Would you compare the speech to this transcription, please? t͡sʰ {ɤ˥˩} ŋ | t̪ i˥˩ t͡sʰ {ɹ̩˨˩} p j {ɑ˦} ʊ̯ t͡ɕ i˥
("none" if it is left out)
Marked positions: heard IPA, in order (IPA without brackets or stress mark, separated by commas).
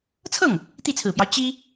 ɤ˥˩, ɹ̩˨˩, ɑ˦